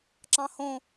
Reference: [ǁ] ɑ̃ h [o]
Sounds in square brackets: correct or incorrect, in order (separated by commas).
correct, incorrect